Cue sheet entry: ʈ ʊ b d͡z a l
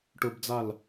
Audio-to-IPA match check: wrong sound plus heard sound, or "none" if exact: none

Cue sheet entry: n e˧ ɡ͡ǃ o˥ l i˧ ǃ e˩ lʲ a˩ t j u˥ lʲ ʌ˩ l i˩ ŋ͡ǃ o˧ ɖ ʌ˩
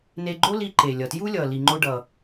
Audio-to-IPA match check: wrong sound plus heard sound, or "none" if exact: a˩ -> ʌ˩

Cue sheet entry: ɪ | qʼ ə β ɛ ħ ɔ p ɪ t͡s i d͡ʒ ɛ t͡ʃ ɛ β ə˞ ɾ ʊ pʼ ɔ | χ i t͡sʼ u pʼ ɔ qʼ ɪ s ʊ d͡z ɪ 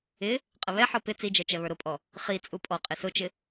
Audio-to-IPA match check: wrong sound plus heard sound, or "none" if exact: d͡z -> t͡ʃ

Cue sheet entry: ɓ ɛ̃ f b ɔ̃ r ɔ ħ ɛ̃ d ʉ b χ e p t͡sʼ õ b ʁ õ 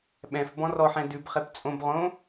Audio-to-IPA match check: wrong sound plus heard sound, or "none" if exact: none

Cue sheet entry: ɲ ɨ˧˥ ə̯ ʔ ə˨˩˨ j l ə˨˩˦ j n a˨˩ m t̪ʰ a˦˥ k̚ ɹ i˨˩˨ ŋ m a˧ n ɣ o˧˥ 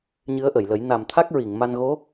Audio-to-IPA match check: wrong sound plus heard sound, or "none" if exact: none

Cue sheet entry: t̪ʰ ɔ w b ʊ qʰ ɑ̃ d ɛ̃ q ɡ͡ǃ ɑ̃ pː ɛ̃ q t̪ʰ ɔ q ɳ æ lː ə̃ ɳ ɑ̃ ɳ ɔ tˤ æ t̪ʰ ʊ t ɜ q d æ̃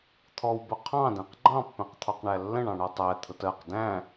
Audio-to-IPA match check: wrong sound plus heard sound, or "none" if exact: none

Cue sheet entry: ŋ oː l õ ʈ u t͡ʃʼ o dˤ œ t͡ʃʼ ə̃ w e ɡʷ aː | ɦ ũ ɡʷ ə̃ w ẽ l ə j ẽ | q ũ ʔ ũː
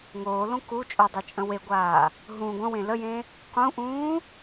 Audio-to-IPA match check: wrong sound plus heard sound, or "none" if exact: ʈ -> k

